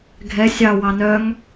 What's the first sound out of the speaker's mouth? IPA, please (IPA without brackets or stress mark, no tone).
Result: ɡʱ